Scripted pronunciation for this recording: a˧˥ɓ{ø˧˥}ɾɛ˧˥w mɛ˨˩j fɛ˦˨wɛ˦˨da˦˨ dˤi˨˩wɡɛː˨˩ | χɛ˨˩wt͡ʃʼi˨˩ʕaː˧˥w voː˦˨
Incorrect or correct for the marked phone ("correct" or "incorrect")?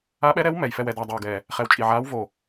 incorrect